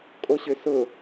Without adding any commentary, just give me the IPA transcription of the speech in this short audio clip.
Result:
kʼ o ɕ ø s ʊ

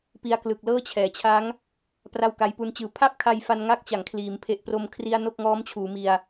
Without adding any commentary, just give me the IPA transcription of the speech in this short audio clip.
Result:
p i˦˥ a̯ k l ɯ˨˩ k̚ l ɤː˥˩ t͡ɕʰ ɛː˩˦ t͡ɕʰ a˦˥ ŋ | p r a˥˩ w k a˦˥ j p u˦˥ n t͡ɕ ɯː˧ pʰ a˥˩ p̚ kʰ a˧ j f a˧ n ŋ a˥˩ k̚ t͡ɕ a˨˩ ŋ kʰ l iː˩˦ m pʰ e˨˩ ʔ p r o˧ m kʰ r i˧ a̯ n o˥˩ k̚ ŋ ɔː˦˥ m t͡ɕʰ uː˩˦ m i˧ a̯

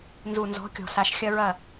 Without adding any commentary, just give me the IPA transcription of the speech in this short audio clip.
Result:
n z u˨ n z ɔ̤˨˦ kʲ ɔ̤˨ s a˨ ʃ xʲ ɐ˦ ɹ ɐ˦˨

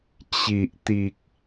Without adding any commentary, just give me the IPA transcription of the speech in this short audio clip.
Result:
t͡ɕ i˨ ʔ t̪ i˨ k̚

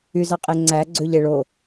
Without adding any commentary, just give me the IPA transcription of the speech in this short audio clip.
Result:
y z ɑ qʼ e ŋ͡ǀ æ ɡ͡ǀ ø ʎ e ɭ o

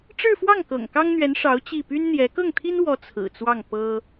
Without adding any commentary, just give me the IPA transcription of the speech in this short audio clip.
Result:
ʈ͡ʂ ɻ̩˥˧ f w ɑ˥˩ ŋ k ɤ̰˨˩ ŋ k ɑ˥ ŋ n̪ ɥ ɛ˧˥ n ʂ ɑ˧˥ ʊ̯ t͡ɕ i˥˩ p y˥ n n̪ j ɛ˧˥ k ɤ˥˩ ŋ t̪ʰ i˥ n w ɔ˧˥ t͡sʰ ɹ̩˨˩ t͡s w ɑ˥˩ ŋ p ɤ˥

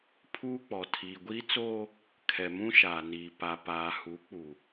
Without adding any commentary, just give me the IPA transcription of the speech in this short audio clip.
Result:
pʰ uː˦ k͡p ɔ˨ tʰ iː˨ ɡʷ iː˦ t͡s oː˦ | kʰ ɛ˨ m ũ˦ ʃ aː˨ n iː˨ p a˨ p aː˨ h uː˨˦ k͡p uː˨

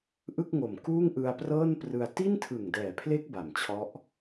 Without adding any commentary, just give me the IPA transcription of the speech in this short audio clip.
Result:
ʔ ɯ˥˩ k̚ ŋ o˨˩ m k uː˥˩ ŋ ʔ ɯ˧ a̯ p r ɤː˥˩ n p r ɯ˧ a̯ t i˥˩ n tʰ ɯ˨˩ ŋ d ɛː˨˩ pʰ l e˦˥ k̚ b a˨˩ m t͡ɕʰ ɔ˦˥ ʔ

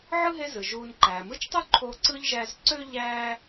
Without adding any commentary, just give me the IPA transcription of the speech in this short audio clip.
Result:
ʕ ɯ˥ ɦ e˦ z ɯ˩ ʒ uː˨ n ǃ æː˩ m ɯ˦ t͡ʃ tˤ u˥ ǃʰ o˦ ǀ ɯ˥ ʎ ʒ æ˦ z ǀ ø˥ ʎ æː˥

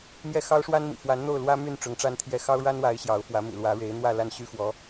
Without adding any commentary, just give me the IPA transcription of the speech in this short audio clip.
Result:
m j ɛ˥˩ x ɑ˥ ʊ̯ ʂ w a˥ n m ḭ˨˩ f w a˧˥ n n̪ o˥˩ ʊ̯ l w ä˥ m y˥˩ n ʈ͡ʂ ʊ˧˥ ŋ ʈ͡ʂ a˥ n t̪ʰ j ɛ˥˩ x ɑ˥ ʊ̯ ɻ a˥ n w a˧˥ ɪ̯ ɕ j ɑ˧˥ ʊ̯ f w ä˧˥ m ḭ˨˩ l w ä˧˥ ɻ e˧˥ ɪ̯ n̪ w ä˥˧ l a˥˩ n ɕ y˥ x w ɔ˧˥

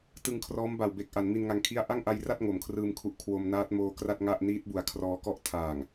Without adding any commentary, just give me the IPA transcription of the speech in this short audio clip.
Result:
t ɯ˧ ŋ kʰ r ɔː˦˥ m b a˨˩ w b e˨˩ k̚ ʔ a˩˦ n m i˧ n ŋ a˧ ŋ kʰ i˥˩ a̯ ʔ a˥˩ ŋ ʔ a˧ j r a˥˩ t̚ ŋ o˩˦ m kʰ r ɯː˧ m kʰ u˨˩ ʔ kʰ w o˧ m n aː˦˥ t̚ m oː˧ k r a˥˩ t̚ ŋ a˥˩ ʔ n iː˦˥ t̚ b u˨˩ a̯ kʰ r ɔː˧ k ɔ˥˩ ʔ tʰ aː˨˩ ŋ

